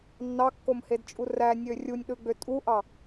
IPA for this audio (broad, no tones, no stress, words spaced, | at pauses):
nːɑkːomhedt͡ʃʼu rænʲø rʲunʲɗɯɡ͡bø tʼuʔɑ